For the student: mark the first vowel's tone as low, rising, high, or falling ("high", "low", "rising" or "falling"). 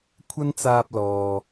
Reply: high